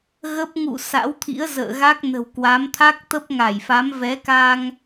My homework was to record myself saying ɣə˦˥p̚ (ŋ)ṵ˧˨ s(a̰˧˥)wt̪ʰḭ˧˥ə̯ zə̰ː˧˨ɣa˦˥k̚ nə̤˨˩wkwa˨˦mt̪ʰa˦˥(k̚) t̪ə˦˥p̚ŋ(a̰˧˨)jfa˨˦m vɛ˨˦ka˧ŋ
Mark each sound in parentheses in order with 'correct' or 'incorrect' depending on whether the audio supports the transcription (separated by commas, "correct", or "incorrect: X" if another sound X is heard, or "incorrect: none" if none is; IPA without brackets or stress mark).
correct, correct, correct, incorrect: a˧˩